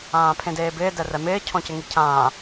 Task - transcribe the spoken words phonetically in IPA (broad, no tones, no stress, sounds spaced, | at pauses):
ãː pʰ ẽ d eː b ɪː d ɛ r ɛ m ɪː cʰ ɔ̃ c ɪ ŋ i cʰ ãː